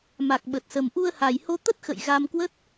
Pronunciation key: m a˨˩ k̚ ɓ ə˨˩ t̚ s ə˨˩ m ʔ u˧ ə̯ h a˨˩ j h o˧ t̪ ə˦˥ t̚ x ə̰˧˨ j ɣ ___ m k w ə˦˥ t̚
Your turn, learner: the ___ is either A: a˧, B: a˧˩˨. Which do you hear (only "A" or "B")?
A